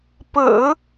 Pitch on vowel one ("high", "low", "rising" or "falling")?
low